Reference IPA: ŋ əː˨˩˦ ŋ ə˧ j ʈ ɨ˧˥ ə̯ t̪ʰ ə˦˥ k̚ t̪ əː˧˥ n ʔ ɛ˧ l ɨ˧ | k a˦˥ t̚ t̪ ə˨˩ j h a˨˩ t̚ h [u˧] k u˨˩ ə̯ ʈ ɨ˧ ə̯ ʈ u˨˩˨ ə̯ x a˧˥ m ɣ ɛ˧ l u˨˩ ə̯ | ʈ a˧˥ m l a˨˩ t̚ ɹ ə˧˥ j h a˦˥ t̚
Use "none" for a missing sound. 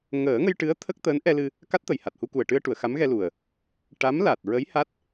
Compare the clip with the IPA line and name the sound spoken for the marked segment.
u˧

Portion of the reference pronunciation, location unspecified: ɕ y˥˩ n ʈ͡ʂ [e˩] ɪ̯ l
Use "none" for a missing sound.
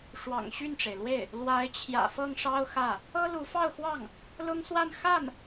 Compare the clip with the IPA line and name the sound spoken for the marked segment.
e˩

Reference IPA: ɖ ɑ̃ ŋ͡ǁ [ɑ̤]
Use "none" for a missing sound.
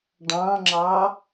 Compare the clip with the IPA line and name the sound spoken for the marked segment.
ɑ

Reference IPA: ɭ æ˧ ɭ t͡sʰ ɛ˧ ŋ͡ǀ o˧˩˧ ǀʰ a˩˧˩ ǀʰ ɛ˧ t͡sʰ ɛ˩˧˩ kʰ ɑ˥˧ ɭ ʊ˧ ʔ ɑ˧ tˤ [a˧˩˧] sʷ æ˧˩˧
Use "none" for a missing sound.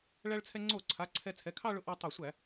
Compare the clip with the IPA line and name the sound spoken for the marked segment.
ɑ˧˩˧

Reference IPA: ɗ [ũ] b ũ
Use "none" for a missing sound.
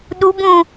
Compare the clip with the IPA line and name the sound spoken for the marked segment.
u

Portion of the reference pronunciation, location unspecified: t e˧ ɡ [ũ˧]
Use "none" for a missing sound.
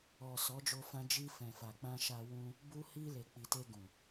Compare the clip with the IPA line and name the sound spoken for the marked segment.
ũ˨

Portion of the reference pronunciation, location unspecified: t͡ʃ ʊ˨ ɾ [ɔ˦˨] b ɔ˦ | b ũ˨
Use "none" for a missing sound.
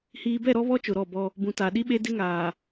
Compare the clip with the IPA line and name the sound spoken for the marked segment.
ɔ˦˨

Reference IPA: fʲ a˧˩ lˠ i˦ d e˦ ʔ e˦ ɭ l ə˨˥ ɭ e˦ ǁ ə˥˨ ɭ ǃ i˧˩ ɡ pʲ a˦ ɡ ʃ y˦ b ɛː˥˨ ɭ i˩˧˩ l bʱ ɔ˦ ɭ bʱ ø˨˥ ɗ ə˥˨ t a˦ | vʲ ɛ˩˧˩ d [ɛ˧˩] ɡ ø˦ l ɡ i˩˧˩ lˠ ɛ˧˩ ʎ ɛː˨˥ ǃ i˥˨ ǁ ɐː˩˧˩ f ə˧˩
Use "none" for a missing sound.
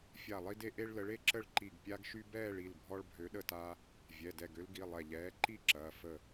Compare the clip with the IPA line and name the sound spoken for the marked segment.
ɛ˧˩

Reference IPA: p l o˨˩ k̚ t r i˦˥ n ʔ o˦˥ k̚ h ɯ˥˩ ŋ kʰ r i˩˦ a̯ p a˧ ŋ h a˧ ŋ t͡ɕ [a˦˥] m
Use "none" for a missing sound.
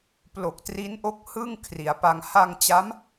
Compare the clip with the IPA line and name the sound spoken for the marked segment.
a˦˥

